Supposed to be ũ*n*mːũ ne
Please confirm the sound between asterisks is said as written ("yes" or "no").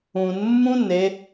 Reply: yes